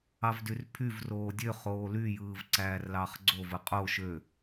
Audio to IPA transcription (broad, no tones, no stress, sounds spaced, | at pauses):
ɑ v d y r pʰ y v r oː dʲ ø χ oː l y j ɯː v ǀ æː r l ɑ χ ɡ͡ǀ o v ɯ qʼ o ʃ ø